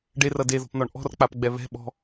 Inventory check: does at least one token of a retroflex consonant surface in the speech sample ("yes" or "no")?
yes